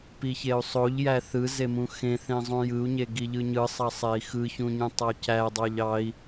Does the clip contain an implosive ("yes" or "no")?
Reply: no